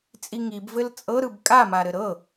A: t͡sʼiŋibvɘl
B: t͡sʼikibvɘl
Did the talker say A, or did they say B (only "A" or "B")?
A